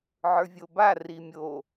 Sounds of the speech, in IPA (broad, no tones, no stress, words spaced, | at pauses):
ʕə˞vʲoba rimʲo